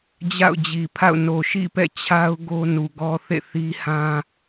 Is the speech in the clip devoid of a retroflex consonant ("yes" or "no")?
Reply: yes